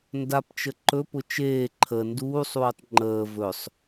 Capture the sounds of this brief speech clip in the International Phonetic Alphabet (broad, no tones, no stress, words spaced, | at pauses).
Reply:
ndapt͡ʃə ǃɵpʊ t͡ʃeː ǃʰə nduːsˤuːtˤ ŋ͡ǃəː vɵsˤ